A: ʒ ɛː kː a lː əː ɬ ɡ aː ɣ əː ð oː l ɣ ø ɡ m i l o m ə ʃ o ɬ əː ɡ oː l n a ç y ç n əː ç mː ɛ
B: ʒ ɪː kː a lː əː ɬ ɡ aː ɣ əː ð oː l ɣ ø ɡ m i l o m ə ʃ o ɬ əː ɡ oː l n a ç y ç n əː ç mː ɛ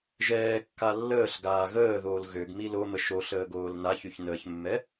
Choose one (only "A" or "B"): A